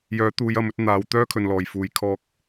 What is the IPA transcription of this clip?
j œː˨˥ t̪ uː˨˧ j ɐ˨˥ m ɵ˧ t̚ n̪ aː˨˧ w t̪ œː˥ kʰ ɵ˨ n l ɔː˨˩ j f uː˨ j kʰ ɔː˧ k̚

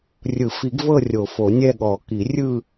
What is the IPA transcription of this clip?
rʲ ɯ˨˩˦ f i˨˩˦ ɡ v ɤ˦˨ rʲ o˨˩˦ f o˨˩˦ nʲ ɛ˦˨ ɠ ɔ˨˩˦ k i˨˩˦ rʲ ɯ˦˨

